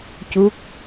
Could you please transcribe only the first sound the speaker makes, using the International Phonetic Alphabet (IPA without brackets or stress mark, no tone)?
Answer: c